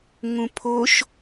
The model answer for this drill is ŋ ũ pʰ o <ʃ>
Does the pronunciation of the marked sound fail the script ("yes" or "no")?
no